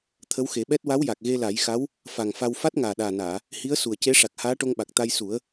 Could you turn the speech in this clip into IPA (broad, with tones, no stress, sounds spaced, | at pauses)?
t̪ʰ ə˧˥ w x e˨˩˦ ɓ ɛ˦˥ t̚ w a˧˥ w j a˨˩ k̚ ɣ e˧ l a˨˩˦ j x a˧˥ w | f a˨˩ ŋ f a˧ w f a˦˥ t̚ ŋ aː˨˩ ɗ aː˨˩ n aː˨˩˨ | h i˧˥ ə̯ s u˨˩ ə̯ c e˧˥ ʂ a˨˩ k̚ h aː˧˥ ʈ o˧ ŋ ɓ a˨˩ k̚ t̪ a˧ j s u˨˩˦ ə̯